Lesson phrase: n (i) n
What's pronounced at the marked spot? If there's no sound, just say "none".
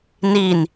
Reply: i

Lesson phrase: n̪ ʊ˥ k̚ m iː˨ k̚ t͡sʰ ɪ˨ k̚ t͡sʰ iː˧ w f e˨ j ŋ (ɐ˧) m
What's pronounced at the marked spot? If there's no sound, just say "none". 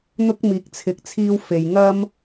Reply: ɐ˥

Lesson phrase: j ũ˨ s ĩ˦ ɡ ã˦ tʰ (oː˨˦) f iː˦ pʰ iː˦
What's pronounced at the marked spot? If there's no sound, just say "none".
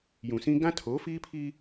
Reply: oː˨˦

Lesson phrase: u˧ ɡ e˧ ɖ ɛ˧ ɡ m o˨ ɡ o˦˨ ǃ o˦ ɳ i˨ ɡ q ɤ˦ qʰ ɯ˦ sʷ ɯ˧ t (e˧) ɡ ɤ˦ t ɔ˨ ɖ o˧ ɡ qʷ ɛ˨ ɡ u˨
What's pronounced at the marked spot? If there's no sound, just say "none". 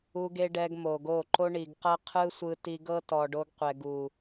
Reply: i˧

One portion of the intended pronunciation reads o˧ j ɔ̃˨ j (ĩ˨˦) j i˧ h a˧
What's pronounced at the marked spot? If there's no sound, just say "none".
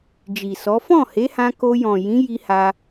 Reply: ĩ˨˦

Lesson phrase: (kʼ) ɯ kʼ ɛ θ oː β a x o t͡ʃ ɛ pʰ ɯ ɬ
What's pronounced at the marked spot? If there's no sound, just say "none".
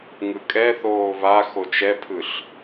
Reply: ŋ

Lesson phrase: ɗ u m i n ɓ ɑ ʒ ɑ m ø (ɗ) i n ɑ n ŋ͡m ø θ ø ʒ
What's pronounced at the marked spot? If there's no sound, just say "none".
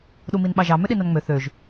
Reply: ɗ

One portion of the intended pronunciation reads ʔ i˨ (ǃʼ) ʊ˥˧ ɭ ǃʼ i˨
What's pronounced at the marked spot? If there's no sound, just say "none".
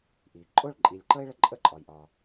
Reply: ǃʼ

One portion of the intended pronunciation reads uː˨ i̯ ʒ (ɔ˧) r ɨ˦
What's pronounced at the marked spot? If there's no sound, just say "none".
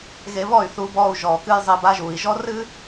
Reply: ɔ˦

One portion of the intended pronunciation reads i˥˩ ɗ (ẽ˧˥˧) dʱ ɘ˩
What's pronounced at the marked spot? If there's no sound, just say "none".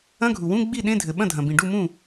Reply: ẽ˧˥˧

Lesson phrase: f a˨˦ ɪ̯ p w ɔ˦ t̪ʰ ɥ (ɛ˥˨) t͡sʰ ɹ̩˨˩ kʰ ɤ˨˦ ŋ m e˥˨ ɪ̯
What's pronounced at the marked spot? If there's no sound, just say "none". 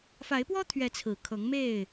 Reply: ɛ˨˦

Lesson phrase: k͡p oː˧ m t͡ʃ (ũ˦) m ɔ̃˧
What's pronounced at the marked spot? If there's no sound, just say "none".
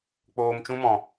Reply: ũ˦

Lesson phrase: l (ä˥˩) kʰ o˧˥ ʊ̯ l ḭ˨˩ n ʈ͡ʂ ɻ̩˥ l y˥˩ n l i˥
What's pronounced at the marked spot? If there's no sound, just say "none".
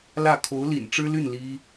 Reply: ä˥˩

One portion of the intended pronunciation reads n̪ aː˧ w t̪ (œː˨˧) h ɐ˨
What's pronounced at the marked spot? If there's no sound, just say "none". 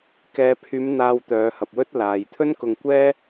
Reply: œː˨˧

